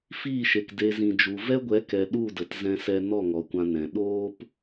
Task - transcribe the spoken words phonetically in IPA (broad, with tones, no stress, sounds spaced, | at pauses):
f iː˦˨ ʃ e˨ k d e˨ z ĩ˨ d͡ʒ u˨ v ɛ˦ ɡʷ ɛ˨˦ k ɛ˨ ɗ u˦˨ d ə˨ t z ɛ̃˧ s ɛ˧ n ɔ˦˨ ŋ ɔ˨ kʷ ã˧ n ɛ̃˧ ɗ oː˦ p